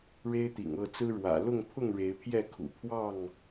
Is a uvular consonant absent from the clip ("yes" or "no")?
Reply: yes